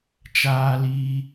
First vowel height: low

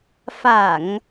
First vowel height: low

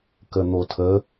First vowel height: mid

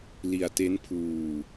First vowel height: high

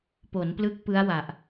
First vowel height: mid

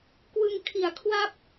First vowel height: high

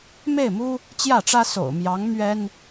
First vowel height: mid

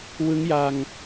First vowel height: high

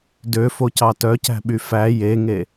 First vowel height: mid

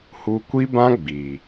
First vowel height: high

